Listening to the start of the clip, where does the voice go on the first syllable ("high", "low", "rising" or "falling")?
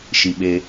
low